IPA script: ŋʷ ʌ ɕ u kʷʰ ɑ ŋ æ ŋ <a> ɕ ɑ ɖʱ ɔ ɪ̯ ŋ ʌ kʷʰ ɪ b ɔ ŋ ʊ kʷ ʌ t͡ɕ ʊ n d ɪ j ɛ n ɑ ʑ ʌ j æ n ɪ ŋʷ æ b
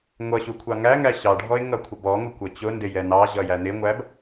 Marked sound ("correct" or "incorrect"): incorrect